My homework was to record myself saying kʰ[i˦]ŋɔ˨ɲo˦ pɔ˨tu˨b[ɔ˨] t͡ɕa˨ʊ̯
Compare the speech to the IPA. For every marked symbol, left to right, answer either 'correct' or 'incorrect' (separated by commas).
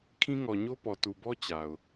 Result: incorrect, incorrect